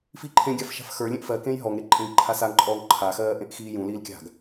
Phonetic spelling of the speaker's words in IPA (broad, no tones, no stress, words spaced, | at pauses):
fiːǃʰẽɡʲaf ʃa̤fxə˞lʲẽʔ fɜ kẽjɦɔŋɾe ǃʼẽɡǃʰasaŋǃʼɔːŋ ǃʰaxɜː ʔẽʔxiːjũliːl kʲa̤ɡ